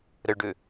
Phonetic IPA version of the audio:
ɾəɭɖø

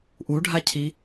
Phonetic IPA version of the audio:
ʔuɖʱacʰi

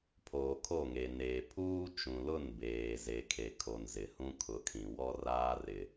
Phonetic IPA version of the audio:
pʰoː˨kʰo˦˨ŋe˨neː˨ pʰuː˦ t͡ʃũ˨lʊ˦˨n beː˨ze˨kʰe˨ kʰo˨n zɪ˨hũ˦ kʰʊ˨kʰĩ˨ wɔ˦raː˦rɪ˨

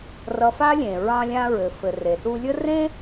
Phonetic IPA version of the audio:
rʌ˧fa˥lʲẽ˩ ɹɑ̃˧lʲã˧ɹɘ˩fɘ˩ re˩su˧lʲə˥ rẽ˥

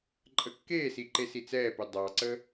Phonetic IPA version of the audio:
ǃʼəkːeːsi ǃesit͡sɛːpɛ dˤɑǀə

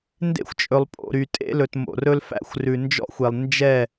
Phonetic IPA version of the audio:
ndḛ˦xʷt͡ʃʼɵ˨lˠ pʼo̰˨ɾy˨ tʼḛ˦lɵ˨tmo̰˨rɵ˦l fæ̰˦xʷrʉ˨nd͡ʒɔ̰˦xʷe˨lˠ nd͡ʒɛ˦˨

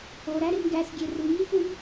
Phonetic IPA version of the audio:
oɾæ ɾemɡæsɡʲe ruŋifum

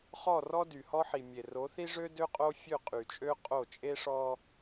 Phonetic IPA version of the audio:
χɔ˦˨rɔ˦ dy˨hɔ˦ħi˨ mʲe˨ ro˨˦θi˦ʐø˦ dø˦qʼo˦fʲø˦˨ qʼy˨t͡ʃʼø˦ qʼo˦˨t͡ʃʼe˦ʂɔ˦

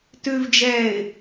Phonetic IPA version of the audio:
tʉvd͡ʒɛːɪ̯

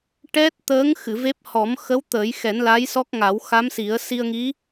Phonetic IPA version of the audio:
ʈɛ˦˥t̚t̪əː˧˥ŋxɨ˨˩˨ ve˦˥p̚ hɔ˨˩˦mxə˧˥w t̪əː˨˩˦jxɛ˨˩˦n la˧˥jsɔ˦˥k̚ŋa˨˩˦w xa˧˥msi˨˩˦ə̯ si˧ə̯ŋi˧˥

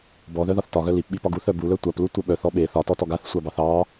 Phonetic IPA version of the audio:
bɔðœðɒθ tɒɣœ lipɓipɒɡ uθœ bulœ tʷaplutʷœ ɓœθɔ ɓe θɒtɔtɔɡ aθsʷɑbɑθ ɑ

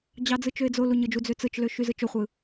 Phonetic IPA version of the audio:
d͡ʑɑd͡zɯt͡ʃøɪ̯d͡zo luɲɯd͡ʒu d͡zøt͡sɯt͡ʃlø ʃyzɯt͡ʃoχʷɯ

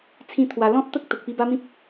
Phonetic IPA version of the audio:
t͡sʰĩ˦ t̪ʰwa˧ lɔ̃˦t̚t̪ə˦k̚ t̪ə˨k̚pi˧ba˦mĩ˦p̚

